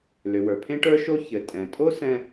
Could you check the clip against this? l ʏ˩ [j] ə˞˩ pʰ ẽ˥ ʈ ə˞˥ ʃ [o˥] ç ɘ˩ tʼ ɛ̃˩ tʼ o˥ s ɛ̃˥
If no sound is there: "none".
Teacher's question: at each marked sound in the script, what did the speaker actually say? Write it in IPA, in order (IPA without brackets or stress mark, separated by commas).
w, o˥